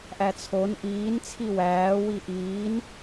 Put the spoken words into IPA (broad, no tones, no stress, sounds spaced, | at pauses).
ʔ æ t͡sʰ o n ʔ iː n t͡sʰ i w æː w i ʔ iː n